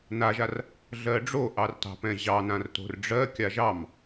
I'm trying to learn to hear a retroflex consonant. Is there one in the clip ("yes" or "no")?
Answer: yes